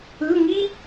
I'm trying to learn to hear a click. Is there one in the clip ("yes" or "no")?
no